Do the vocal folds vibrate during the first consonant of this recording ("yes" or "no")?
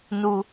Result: yes